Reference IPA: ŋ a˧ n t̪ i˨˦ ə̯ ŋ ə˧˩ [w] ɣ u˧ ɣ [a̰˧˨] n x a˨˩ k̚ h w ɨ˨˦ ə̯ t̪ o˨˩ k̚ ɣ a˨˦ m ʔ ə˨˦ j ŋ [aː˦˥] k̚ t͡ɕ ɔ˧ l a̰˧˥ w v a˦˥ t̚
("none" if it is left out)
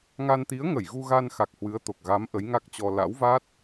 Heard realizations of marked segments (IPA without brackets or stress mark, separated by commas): j, a˧, a˦˥